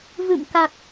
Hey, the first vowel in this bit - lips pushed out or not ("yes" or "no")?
no